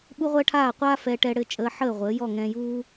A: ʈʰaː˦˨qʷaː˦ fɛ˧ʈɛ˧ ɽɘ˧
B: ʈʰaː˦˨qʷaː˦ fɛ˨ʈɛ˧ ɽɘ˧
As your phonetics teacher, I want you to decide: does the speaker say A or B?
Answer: A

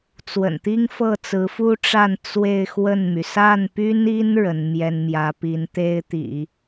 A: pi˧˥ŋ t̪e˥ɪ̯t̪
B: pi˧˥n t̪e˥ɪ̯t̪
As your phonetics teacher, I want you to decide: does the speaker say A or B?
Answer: B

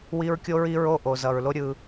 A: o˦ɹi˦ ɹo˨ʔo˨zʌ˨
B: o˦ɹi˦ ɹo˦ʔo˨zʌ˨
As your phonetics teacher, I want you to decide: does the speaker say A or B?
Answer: B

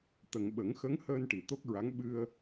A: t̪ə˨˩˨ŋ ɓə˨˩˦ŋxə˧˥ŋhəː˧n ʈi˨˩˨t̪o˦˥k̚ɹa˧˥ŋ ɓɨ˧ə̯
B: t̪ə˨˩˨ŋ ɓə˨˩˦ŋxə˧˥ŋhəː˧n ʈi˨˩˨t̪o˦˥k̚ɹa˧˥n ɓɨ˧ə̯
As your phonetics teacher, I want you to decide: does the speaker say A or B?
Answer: A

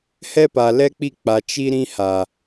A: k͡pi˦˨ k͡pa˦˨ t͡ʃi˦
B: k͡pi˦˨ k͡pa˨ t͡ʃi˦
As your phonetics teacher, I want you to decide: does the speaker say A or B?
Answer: B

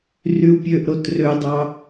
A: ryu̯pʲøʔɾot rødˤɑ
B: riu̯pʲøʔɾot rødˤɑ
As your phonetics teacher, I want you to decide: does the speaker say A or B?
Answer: A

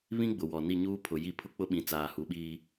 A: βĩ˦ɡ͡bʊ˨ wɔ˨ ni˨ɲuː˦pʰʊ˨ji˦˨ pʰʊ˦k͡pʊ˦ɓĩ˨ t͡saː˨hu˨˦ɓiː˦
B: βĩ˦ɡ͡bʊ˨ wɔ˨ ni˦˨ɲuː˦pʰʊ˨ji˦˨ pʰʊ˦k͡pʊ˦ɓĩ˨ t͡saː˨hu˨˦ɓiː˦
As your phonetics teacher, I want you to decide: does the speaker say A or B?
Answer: B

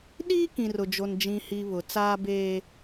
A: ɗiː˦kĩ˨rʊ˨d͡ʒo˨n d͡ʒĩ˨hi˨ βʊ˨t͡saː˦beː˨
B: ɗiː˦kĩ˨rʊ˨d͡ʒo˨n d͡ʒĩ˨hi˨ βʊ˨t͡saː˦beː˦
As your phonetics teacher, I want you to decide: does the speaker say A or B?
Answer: B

